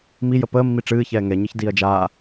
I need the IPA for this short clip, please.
mijə pəːmːi ʈ͡ʂɨːçɛː ŋɛɲɨç diːɐ̯d͡ʒaː

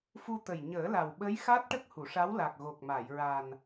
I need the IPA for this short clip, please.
fu˧t̪ə˨˩j ɲəː˨˩˦la˨˩wɓə˧˥j xa˦˥t̚ʈə˦˥k̚ hu˨˩˨ʂa˧˥w la˨˩k̚ ɣo˨˩k̚ma˨˩˨j ɹa˨˩n

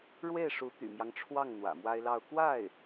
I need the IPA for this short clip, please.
ɻwe˥˩ɪ̯ʂu˧˥ t̪y̰˨˩mjɑ˦ŋʈ͡ʂʰwɑ˥˩ŋ n̪wä̰˨˩mwa˥ɪ̯lɑ˥˧ʊ̯ kwa˥˩ɪ̯

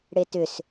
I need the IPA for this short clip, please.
ɽetʏs

